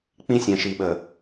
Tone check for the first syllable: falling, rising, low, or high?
high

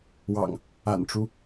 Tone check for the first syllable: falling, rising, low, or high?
low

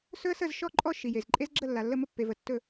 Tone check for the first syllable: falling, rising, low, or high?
high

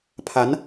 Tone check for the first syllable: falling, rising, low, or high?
rising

